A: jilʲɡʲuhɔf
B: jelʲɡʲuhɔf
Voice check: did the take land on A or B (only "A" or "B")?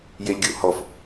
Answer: B